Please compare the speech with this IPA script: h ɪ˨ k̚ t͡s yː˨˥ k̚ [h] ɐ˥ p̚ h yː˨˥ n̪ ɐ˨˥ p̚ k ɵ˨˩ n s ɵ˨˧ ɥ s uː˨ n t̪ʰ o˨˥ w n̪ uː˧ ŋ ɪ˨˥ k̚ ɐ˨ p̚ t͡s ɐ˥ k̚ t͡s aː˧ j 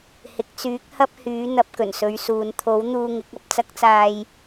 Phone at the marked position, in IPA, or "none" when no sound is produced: h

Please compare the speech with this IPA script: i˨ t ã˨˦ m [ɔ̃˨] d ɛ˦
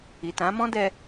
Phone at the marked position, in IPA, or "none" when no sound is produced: ɔ̃˦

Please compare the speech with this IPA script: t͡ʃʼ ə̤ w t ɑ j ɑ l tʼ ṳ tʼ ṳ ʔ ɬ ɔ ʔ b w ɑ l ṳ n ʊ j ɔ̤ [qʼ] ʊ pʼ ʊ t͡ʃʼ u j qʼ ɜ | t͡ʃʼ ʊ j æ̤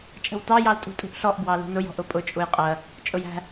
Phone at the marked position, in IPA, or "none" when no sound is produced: ʔ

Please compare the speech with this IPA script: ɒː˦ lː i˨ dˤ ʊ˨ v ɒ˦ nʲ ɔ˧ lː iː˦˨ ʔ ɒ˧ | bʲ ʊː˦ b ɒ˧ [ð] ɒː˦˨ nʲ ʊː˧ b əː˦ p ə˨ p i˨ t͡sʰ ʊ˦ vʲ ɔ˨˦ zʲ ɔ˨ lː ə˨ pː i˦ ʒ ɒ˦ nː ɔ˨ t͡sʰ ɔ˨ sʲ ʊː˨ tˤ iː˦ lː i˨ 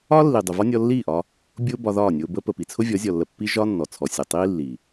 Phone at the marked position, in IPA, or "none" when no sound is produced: ð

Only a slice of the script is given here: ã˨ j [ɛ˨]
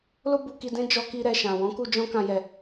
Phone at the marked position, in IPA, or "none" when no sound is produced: ɛ˨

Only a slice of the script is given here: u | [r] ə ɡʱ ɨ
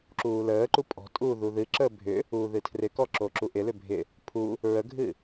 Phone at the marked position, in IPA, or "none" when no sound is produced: ɹ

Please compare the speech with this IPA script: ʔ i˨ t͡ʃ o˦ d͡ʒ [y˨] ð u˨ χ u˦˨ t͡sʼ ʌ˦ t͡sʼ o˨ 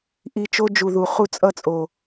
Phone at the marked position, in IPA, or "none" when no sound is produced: u˨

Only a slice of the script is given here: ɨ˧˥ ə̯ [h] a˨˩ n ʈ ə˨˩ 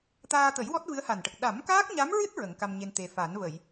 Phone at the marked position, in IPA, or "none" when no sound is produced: h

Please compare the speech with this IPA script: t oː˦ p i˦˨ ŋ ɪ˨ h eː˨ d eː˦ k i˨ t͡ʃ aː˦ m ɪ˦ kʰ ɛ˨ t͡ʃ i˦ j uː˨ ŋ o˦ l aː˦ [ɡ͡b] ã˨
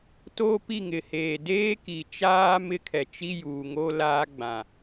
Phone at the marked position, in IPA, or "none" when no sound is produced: ɡ͡b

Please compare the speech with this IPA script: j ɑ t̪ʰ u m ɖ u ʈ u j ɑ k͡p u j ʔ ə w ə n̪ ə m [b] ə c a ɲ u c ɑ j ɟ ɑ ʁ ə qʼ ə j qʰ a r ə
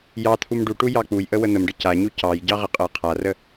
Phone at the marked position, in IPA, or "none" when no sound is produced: ɖ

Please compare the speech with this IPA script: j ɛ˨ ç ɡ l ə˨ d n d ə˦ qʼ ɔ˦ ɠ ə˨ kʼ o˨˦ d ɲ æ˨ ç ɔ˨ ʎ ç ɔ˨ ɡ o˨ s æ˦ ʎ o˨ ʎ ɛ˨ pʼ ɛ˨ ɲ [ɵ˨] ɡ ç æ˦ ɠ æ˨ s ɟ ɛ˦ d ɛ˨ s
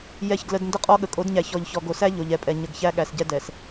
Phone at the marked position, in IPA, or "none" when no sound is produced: ə˨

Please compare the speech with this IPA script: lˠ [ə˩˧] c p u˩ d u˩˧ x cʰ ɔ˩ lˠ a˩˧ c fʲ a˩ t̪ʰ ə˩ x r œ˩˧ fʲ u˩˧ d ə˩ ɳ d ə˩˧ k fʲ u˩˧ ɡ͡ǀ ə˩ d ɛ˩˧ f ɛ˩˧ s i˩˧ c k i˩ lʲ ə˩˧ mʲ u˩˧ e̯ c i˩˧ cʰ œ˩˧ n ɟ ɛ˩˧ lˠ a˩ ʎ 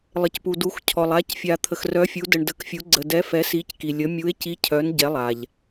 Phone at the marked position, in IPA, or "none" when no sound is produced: ə˩˧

